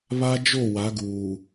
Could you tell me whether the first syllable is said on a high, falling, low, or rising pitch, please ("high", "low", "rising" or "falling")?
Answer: high